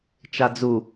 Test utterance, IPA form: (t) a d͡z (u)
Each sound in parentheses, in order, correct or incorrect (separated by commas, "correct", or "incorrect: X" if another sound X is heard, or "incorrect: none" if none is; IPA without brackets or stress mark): incorrect: t͡ʃ, correct